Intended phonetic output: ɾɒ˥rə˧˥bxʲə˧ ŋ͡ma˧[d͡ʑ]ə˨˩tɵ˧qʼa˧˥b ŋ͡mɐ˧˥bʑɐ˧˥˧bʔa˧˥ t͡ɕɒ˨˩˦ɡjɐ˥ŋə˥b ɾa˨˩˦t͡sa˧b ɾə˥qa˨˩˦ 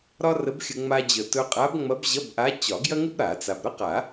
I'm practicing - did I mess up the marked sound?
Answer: no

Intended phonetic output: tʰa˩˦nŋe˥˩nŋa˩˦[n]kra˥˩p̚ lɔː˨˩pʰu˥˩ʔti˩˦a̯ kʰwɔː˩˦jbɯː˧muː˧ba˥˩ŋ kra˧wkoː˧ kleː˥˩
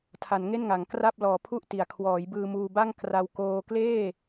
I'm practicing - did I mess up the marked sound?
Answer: yes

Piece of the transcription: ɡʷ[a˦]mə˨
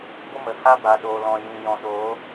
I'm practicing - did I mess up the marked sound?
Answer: yes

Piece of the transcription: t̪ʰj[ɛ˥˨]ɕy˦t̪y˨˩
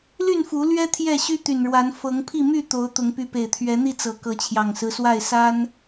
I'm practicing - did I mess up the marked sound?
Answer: no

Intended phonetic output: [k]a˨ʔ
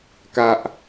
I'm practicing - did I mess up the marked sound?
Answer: no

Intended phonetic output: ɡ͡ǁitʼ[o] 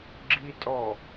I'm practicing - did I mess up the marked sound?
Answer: yes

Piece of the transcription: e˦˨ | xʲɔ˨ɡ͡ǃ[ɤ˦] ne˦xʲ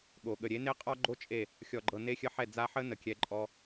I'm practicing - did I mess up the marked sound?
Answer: yes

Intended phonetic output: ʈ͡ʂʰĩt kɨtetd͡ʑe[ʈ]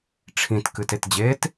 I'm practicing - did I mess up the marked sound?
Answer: yes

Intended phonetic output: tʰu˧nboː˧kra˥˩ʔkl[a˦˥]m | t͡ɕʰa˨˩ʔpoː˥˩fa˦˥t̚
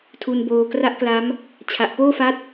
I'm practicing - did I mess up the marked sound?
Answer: no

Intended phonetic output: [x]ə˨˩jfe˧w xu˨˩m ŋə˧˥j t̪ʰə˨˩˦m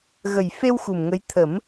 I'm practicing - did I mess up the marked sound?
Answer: yes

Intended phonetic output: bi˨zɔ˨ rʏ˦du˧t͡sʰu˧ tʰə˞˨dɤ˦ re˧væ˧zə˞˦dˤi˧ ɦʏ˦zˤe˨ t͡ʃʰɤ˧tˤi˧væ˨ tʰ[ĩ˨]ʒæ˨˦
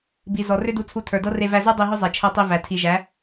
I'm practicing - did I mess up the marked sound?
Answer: yes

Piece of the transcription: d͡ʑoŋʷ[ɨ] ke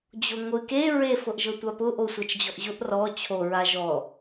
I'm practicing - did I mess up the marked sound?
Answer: no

